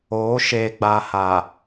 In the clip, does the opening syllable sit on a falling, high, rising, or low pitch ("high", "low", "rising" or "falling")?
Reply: rising